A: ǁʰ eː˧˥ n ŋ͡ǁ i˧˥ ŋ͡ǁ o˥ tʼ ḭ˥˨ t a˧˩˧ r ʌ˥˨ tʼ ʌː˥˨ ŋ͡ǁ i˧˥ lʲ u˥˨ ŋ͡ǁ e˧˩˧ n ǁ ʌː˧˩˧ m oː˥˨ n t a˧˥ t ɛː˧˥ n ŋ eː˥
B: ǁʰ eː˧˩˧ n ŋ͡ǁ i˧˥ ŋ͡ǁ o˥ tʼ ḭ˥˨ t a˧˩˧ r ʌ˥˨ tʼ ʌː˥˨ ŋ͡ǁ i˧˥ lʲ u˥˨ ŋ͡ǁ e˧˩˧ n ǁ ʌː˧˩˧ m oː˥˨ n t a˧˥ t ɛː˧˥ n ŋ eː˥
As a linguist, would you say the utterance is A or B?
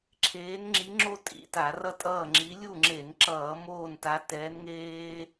A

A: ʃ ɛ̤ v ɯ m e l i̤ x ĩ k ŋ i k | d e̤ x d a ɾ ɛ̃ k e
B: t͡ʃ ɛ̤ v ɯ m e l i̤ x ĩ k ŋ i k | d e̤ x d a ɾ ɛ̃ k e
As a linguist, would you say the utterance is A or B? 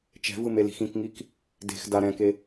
B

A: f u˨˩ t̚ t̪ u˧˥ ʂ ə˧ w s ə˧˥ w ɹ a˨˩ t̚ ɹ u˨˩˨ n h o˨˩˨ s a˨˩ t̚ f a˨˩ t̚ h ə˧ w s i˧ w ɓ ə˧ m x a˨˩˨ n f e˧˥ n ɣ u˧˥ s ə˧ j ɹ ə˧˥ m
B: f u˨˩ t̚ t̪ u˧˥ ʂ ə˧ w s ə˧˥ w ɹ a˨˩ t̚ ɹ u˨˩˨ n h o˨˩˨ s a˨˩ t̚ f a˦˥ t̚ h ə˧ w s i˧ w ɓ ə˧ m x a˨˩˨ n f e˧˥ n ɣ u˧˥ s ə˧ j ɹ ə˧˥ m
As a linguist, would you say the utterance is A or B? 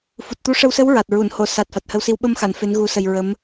A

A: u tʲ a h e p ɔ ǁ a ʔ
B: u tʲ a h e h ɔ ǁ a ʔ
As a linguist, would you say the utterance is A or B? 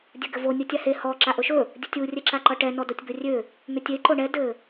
B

